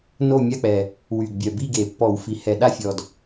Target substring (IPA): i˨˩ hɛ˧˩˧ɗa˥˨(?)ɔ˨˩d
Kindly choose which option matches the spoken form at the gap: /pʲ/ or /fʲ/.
fʲ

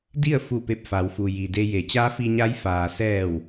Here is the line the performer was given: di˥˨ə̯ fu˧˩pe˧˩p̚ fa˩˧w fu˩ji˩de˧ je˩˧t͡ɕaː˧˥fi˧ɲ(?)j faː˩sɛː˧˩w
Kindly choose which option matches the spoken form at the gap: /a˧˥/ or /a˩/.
a˧˥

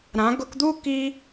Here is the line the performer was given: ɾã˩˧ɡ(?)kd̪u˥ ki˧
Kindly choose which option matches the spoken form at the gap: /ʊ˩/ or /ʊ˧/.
ʊ˧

